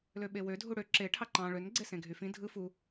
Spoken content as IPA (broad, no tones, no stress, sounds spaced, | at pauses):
l ø ɓ e w ø dʱ u ɽ ø ǁ e ʈʰ ɑ ǃ ɑ̃ ɭ ø n ɡ͡ǀ e s ẽ ɡʱ y f ĩ dʱ ɯ f u